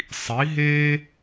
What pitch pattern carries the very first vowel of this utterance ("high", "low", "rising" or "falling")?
rising